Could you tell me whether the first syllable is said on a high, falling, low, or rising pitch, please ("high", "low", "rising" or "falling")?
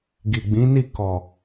low